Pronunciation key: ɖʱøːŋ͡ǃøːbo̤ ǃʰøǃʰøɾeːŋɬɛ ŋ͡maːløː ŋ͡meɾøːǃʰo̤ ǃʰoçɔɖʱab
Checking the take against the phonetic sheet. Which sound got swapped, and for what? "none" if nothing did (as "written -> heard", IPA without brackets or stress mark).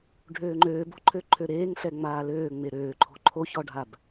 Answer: none